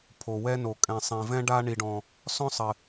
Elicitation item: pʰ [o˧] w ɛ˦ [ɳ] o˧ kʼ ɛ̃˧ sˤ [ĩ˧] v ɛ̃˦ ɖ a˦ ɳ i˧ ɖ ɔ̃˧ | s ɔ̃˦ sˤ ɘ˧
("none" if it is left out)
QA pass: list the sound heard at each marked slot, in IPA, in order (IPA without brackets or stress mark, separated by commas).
o˧, n, ĩ˧